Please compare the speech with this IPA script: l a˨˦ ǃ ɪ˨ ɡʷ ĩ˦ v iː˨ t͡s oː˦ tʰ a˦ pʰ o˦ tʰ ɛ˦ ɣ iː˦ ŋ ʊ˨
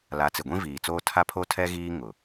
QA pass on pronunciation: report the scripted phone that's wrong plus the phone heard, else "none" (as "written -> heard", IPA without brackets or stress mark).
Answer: ǃ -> t͡s